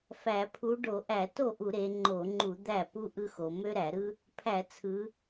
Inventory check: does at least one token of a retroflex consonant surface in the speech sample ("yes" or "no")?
yes